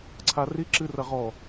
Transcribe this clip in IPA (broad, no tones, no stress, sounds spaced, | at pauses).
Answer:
ǀʰ a r i ǁ ɨ r ɐ ʁ ɔ